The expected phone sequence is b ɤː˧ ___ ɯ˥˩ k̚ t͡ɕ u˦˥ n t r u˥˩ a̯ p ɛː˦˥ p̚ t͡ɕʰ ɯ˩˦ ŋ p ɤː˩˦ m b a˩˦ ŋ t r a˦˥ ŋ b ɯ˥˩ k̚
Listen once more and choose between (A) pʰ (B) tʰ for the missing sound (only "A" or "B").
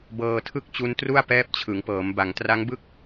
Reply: B